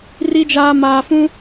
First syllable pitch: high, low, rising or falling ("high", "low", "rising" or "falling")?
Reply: low